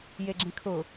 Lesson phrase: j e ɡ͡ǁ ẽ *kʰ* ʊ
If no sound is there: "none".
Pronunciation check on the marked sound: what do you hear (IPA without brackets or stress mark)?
kʰ